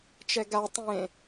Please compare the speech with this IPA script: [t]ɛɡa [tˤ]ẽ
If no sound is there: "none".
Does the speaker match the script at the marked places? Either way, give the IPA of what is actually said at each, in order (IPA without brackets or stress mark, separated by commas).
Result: t͡ʃ, tˤ